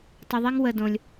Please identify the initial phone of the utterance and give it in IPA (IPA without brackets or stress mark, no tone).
tˤ